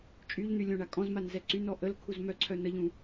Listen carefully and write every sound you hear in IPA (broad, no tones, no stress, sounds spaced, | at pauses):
t͡ʃʼ y ʎ n̪ y lʲ õ ɳ a kʼ ɔ̃ z m a n z ɛ ǀ y n ɔ ʔ ə l kʰ u z m œ ǀʰ œ n ə ʎ ũ